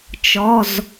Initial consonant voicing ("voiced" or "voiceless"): voiceless